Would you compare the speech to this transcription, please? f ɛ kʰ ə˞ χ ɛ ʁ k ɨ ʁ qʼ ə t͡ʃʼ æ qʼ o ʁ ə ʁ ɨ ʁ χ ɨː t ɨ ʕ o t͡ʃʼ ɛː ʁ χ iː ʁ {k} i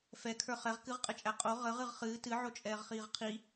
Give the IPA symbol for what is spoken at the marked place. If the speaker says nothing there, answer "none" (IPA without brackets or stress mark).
qʰ